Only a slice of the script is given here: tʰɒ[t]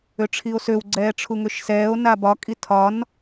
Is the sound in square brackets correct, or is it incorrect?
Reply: incorrect